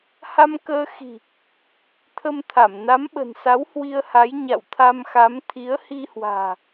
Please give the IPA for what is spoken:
ha˧m kəː˧xi̤˨˩ | t̪ʰə˧mt̪ʰa˧˩m na˨˦mɓə̤˨˩nsa˨˦w hwi˧ə̯ha˨˦j ɲa̰˧˨wt̪ʰa˧mxa˨˦m t̪ʰi˨˦ə̯hi˧hwa̤ː˨˩

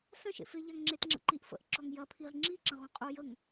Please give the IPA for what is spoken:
sɐ̃ʃḛfe ʎaŋŋ͡ǁetŋ͡ǁə̰ǃiʔ fə̰ʔǁɔŋ jɐ pʰiʁ ŋ͡ǁiǁɐ̃ ʁɔ̃qʼu jəŋ

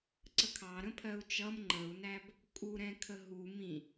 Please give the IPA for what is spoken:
ǀəkʰɑ ɾə̃pʰɜu̯t͡ʃʌm ŋ͡ǃəu̯næb | kʼuɾɛ̃kʰə ɦu mĩ

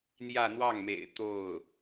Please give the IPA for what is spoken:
n̪jä˥˧n̪wɑ˥˩ŋmḛ˨˩ɪ̯ t̪o˥˩ʊ̯

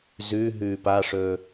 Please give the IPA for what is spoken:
zʉɦʉːp aʂɵː

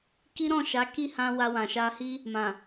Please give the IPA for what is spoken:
ki˦ɾɔ̃˦˨ʃa˨˦ ki˦˨hã˧ wa˧wã˨ ʃa˧hi˦ | mã˨

